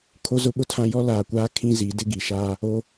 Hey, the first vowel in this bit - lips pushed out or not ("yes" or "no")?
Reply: yes